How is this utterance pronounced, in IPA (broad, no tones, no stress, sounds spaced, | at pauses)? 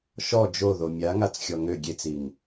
ʃ ɔ d͡ʒ o ð o mʲ a ŋ a t͡s xʲ ɔ ŋ ø ɡʲ e t͡s i ŋ